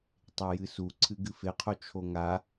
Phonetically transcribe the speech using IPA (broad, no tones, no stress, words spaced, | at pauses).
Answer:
tˤejɨsu ǀʰɨɡɨfeqʰo t͡ʃʰoŋa